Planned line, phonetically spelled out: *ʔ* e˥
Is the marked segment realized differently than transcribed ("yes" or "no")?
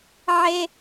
yes